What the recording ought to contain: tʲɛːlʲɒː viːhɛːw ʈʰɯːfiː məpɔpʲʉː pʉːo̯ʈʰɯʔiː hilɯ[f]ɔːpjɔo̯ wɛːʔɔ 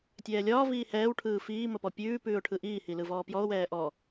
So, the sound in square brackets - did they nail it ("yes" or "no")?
no